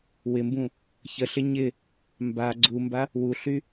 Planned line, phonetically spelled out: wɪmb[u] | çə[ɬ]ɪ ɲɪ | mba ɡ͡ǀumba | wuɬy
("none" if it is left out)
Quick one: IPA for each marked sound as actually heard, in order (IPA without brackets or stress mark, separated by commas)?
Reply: ũ, ɬ